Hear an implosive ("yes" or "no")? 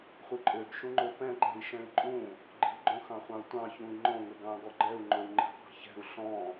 no